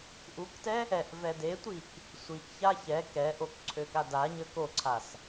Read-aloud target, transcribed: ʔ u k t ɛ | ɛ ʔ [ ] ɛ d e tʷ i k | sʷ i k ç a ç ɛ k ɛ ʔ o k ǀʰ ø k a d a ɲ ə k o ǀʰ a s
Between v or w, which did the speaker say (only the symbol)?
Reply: v